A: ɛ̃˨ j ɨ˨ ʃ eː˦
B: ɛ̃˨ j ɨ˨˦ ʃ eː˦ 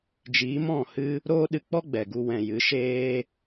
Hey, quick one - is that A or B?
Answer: B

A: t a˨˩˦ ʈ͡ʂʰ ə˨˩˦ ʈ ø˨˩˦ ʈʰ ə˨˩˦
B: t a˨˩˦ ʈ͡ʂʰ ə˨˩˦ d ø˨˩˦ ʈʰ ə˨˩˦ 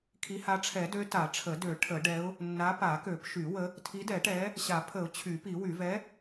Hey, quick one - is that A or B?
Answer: B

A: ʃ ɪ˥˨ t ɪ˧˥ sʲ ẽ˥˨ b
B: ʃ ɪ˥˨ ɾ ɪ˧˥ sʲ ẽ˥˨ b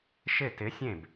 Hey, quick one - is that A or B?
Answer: A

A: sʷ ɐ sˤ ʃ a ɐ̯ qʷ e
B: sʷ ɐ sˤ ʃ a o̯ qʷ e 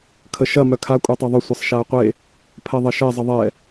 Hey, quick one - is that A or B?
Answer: A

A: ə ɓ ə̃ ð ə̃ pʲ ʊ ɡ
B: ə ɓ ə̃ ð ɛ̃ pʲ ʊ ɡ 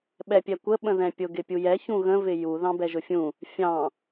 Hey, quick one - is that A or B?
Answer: B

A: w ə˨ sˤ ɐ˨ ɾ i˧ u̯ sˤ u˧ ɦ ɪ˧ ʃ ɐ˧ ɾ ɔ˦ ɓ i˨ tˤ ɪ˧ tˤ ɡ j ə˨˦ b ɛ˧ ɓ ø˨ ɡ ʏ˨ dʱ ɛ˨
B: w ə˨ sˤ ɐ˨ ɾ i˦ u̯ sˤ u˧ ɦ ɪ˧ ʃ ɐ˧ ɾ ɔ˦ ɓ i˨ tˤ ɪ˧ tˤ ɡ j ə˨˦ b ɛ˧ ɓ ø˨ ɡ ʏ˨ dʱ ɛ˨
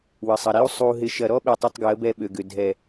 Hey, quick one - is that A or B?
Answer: B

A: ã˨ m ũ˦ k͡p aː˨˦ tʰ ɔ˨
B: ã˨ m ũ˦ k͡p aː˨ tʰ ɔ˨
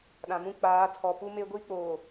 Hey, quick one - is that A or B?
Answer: A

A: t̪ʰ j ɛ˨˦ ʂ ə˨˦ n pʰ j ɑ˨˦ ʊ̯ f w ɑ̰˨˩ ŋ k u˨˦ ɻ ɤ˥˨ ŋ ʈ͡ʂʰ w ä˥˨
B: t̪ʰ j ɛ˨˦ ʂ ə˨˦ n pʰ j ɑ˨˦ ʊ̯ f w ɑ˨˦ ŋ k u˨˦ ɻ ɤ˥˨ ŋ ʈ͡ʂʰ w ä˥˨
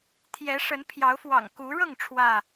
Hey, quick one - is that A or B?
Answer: A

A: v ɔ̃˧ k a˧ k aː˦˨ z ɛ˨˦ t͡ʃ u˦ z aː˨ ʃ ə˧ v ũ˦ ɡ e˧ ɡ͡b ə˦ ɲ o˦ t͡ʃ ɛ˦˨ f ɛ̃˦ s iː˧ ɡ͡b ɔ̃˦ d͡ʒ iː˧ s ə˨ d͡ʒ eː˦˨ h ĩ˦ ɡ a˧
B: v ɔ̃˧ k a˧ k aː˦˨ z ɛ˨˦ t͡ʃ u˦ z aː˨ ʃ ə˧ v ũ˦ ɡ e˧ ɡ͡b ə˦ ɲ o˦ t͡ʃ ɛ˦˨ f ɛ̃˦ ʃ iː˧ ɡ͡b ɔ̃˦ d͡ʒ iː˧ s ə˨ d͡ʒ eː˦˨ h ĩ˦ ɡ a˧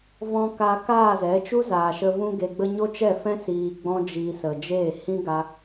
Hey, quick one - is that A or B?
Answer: A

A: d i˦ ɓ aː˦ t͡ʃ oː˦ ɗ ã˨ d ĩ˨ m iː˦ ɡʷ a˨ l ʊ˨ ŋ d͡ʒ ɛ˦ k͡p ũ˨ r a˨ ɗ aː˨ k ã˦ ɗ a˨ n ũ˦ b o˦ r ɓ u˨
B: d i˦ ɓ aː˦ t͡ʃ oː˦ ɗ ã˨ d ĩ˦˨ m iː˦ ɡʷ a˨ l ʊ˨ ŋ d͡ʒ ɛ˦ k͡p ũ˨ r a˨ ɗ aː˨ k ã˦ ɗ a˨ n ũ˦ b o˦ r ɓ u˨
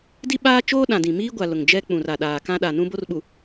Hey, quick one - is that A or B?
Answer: A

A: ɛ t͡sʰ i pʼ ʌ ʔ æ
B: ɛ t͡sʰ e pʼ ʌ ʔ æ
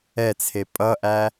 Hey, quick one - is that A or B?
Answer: B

